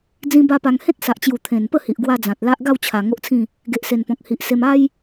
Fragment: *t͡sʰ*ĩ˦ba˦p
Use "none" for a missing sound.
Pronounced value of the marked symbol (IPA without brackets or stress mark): d͡z